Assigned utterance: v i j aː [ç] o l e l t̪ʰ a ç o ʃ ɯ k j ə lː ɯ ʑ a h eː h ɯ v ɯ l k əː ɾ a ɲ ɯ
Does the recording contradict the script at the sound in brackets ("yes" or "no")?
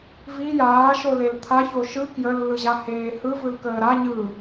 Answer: yes